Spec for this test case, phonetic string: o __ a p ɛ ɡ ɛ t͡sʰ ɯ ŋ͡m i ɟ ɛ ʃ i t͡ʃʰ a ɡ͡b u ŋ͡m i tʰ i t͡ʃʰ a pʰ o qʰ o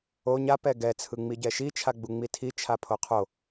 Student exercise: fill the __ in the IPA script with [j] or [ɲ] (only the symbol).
ɲ